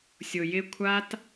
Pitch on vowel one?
low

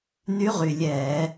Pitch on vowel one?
rising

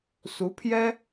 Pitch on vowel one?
rising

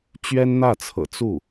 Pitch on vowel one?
high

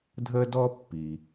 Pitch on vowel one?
high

